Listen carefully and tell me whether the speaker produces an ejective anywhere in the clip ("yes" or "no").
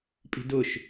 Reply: yes